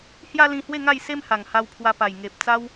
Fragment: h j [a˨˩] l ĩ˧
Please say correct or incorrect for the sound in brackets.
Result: incorrect